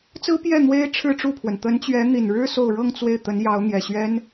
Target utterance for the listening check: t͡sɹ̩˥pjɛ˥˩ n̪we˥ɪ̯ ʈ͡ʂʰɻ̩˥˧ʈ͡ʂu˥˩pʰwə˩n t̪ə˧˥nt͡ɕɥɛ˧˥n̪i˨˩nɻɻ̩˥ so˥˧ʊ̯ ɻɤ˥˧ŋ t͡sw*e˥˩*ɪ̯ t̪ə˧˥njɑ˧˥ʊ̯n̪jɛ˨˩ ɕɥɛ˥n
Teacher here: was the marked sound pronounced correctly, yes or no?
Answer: yes